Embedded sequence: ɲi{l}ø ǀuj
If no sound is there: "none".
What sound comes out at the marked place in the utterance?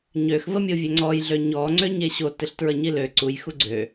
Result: l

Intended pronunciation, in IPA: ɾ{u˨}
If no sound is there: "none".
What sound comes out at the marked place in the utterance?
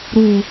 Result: u˨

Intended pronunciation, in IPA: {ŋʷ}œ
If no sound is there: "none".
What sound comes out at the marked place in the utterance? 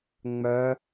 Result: ŋ͡m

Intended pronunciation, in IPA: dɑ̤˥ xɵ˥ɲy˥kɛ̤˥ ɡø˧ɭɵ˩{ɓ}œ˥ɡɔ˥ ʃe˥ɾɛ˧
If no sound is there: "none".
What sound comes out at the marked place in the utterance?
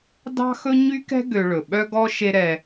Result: ɓ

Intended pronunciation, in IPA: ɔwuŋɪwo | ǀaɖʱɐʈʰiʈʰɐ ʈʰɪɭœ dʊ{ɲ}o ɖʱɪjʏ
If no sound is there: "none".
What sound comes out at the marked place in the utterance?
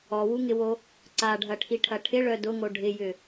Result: ŋ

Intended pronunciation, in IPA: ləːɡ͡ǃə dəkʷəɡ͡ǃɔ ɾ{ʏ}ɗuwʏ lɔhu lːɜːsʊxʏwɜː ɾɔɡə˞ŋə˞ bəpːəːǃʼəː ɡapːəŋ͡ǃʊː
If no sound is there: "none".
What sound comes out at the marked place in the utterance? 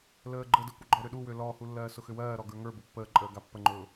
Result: ʏ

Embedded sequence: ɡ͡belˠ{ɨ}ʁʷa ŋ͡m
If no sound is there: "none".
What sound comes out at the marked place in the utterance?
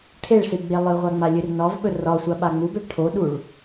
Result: ɨ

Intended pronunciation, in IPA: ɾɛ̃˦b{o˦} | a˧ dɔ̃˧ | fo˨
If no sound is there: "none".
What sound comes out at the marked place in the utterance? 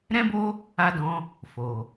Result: o˦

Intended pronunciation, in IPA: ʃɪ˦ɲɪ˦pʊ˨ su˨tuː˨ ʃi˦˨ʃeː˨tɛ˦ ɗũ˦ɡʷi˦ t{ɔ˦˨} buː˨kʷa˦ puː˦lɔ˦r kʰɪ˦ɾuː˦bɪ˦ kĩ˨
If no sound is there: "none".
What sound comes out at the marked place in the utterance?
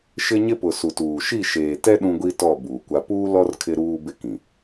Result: ɔ˦˨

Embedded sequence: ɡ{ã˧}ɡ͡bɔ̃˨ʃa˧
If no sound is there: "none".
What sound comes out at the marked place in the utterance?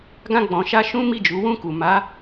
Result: ã˧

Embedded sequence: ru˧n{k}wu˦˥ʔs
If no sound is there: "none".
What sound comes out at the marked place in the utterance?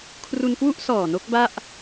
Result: k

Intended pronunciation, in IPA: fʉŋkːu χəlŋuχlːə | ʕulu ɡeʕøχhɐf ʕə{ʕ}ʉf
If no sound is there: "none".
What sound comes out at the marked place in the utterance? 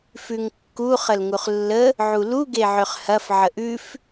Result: ʔ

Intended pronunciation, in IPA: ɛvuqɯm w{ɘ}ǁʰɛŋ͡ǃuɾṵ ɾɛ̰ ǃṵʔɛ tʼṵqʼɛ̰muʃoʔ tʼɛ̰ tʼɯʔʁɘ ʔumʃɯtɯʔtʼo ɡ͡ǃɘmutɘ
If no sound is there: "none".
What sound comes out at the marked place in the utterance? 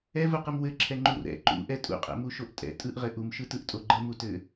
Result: ɘ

